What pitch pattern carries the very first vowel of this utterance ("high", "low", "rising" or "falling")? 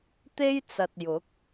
high